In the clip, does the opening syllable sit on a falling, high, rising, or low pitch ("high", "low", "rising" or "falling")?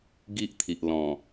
high